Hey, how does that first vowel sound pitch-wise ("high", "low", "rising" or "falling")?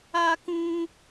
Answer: high